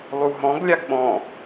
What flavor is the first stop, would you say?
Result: plain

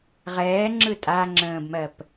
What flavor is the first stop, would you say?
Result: click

